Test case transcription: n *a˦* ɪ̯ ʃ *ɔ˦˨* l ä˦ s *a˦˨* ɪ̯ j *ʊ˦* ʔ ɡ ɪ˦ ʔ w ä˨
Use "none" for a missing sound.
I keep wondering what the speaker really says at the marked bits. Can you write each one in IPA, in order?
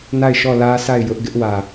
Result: a˦˨, ɔ˦˨, a˦˨, ʊ˦

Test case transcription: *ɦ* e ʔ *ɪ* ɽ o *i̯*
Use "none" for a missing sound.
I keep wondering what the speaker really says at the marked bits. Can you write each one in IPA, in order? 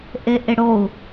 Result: ʔ, ɪ, u̯

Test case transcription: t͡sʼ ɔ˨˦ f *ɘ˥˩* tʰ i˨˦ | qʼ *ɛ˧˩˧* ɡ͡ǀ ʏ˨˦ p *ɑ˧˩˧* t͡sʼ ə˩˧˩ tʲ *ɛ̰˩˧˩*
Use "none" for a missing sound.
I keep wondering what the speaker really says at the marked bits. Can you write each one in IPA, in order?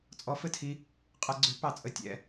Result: ɘ˥˩, ɛ˧˩˧, ɑ˧˩˧, ɛ̰˩˧˩

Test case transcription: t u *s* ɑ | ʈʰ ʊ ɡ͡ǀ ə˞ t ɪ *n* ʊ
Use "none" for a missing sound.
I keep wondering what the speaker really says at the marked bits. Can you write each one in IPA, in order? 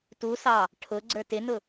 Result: s, n

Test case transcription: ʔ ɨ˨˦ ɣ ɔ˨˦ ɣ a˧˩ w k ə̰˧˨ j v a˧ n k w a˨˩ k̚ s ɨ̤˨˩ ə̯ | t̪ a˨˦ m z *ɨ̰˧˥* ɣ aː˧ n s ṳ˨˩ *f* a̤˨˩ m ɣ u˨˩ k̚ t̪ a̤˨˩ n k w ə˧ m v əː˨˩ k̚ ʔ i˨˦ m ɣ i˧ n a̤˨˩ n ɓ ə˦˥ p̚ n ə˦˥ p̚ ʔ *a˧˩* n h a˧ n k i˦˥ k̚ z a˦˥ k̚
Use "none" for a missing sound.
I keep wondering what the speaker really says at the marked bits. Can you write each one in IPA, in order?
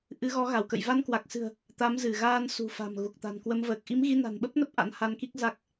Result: ɨ˧˩, f, a̰˧˥

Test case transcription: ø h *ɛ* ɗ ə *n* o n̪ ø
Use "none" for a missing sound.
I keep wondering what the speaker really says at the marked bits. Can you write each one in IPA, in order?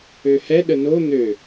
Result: ɛ, n

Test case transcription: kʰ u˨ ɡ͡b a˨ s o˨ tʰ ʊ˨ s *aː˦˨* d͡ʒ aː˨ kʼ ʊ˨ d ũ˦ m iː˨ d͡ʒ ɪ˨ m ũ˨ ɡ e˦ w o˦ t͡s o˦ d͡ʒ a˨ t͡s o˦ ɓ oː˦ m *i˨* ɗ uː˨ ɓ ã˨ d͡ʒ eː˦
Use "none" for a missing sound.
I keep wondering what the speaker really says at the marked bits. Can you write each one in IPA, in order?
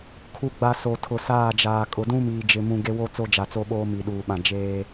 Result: aː˦˨, i˨

